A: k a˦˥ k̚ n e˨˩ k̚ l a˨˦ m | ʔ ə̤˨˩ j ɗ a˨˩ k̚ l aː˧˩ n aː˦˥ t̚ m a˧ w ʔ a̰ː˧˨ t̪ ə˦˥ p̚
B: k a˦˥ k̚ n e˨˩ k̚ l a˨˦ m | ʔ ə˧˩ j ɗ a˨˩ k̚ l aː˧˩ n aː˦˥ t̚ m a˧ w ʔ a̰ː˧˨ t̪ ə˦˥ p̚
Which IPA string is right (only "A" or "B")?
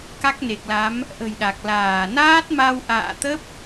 A